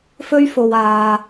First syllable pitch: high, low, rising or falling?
high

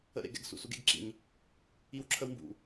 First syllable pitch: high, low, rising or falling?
falling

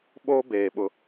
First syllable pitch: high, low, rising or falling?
high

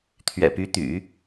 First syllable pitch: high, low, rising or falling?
low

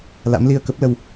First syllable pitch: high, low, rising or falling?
rising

